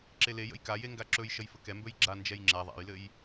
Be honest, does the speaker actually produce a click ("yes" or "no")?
yes